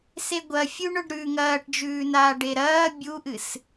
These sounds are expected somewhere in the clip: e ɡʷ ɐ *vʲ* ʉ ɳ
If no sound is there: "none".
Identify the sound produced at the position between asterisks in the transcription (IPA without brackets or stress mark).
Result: fʲ